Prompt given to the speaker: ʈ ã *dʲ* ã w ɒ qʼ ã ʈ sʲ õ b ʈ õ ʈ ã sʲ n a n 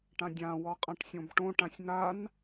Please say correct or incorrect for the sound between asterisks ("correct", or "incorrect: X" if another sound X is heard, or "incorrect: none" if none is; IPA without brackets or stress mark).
correct